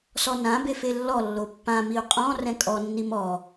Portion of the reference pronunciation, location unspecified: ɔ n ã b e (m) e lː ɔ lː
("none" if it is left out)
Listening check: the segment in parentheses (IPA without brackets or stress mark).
f